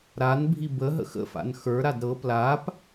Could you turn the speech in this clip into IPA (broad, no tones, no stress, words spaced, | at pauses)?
ɾanbʱi bəɦə̰x ə̰fa̰n xə˞ɾad ɾɤ plap